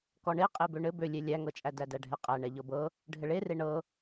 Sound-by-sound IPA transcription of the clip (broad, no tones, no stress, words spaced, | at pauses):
kɔɳe qʼebøɳɘ bølʲe lʲæŋɤt͡ʃʼæ dædæɖʱɛqʼæ ɳɛʎɤbɤ | ɖʱɘɭere ɳɤ